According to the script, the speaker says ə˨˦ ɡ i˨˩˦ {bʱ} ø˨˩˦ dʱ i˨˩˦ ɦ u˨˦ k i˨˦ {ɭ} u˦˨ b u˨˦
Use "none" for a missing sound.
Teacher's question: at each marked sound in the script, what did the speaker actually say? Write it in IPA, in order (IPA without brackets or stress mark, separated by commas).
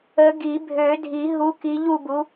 bʱ, ʎ